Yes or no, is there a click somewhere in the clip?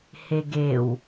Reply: no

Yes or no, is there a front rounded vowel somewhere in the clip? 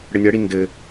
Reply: no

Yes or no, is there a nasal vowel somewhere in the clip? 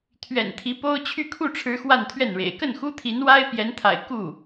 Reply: no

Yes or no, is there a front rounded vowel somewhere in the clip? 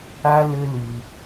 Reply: yes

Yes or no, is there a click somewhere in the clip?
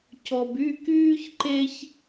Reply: yes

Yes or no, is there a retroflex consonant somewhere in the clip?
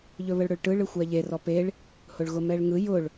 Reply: yes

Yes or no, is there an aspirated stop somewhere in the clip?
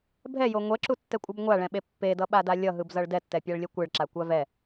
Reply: no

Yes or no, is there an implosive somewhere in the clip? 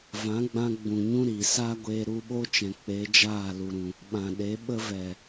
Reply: yes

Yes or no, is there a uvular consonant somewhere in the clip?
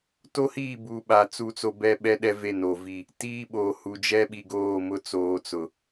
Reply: no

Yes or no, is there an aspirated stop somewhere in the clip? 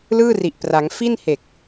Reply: no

